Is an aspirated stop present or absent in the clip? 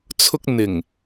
present